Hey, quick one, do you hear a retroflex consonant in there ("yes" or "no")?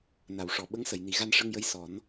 yes